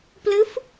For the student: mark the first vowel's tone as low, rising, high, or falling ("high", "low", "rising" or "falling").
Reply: rising